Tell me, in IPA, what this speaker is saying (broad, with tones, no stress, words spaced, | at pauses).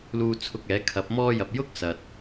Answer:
luː˧t͡sʰʊ˧k̚ɛː˨˥kʰɐ˨˥p̚ mɔː˧jɐ˨p̚ jʊ˥k̚sɐ˨t̚